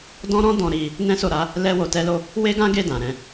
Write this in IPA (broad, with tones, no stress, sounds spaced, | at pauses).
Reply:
d ɔ̃˦ ɾ ɔ̃˦ d ɔ̃˧ ɾ i˧ | n ɛ̃˦ s o˦˨ ɾ a˨˦ | l ɛ˧ w o˨ t ɛ˧ l o˧ | w e˦ ɡ ã˦ ɡ e˦˨ d ã˨ ɾ ɛ̃˧